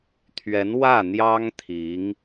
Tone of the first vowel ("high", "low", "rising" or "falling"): rising